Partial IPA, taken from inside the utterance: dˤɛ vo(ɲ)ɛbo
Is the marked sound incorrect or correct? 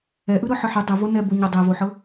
incorrect: n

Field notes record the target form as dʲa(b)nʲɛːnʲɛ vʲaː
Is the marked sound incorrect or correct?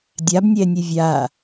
correct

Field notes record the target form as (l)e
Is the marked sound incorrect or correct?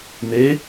incorrect: n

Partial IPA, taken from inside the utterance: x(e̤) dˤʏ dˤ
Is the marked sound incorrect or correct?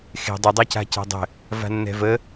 correct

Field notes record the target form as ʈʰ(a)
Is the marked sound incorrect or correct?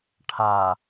correct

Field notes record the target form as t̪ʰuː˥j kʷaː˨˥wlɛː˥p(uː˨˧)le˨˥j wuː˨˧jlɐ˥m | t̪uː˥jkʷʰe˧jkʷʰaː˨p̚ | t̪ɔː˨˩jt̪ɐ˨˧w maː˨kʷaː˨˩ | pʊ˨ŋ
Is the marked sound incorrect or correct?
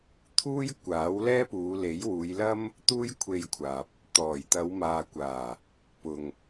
correct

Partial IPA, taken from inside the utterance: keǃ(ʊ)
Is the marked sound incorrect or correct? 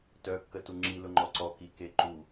incorrect: u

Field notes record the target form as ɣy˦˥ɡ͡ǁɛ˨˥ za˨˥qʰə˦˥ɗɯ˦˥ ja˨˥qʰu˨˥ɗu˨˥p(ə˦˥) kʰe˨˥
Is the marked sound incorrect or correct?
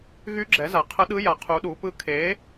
incorrect: ɯ˦˥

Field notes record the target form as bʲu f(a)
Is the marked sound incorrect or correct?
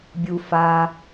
correct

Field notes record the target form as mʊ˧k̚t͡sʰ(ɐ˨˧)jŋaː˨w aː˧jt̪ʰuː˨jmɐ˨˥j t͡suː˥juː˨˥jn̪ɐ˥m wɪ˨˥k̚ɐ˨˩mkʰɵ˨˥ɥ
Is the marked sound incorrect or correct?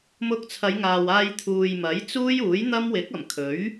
correct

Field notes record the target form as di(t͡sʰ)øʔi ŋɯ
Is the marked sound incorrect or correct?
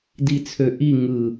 correct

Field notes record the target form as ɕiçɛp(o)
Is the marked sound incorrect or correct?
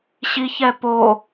correct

